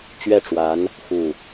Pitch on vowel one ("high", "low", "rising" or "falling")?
falling